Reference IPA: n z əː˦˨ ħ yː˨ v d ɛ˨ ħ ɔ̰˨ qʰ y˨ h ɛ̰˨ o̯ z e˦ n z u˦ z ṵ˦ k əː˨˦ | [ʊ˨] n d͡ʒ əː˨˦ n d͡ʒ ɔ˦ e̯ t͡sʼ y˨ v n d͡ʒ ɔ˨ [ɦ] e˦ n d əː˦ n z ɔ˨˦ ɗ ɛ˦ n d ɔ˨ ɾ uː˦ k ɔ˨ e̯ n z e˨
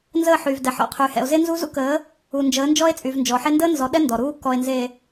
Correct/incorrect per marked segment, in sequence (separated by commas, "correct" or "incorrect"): incorrect, incorrect